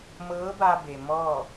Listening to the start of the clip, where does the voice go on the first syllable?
rising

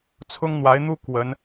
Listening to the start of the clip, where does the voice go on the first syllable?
high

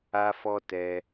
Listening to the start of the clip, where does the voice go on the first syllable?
high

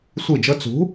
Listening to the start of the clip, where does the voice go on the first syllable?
falling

